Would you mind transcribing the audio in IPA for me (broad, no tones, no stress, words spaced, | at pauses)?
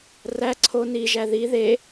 ræ ǀʰo niʒæ ði ðe